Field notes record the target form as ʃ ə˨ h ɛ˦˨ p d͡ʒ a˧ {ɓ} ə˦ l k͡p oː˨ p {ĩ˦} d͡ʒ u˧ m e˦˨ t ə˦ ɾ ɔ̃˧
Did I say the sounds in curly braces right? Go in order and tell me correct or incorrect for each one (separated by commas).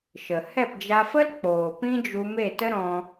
incorrect, correct